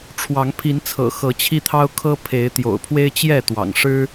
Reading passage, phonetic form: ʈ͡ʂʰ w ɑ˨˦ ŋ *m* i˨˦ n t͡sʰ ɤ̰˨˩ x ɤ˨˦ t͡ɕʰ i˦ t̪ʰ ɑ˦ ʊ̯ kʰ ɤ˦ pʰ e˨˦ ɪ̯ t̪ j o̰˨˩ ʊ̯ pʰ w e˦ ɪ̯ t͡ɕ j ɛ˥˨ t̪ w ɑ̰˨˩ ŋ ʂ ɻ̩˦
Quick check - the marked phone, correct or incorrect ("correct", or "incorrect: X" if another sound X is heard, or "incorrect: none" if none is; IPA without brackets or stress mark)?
incorrect: pʰ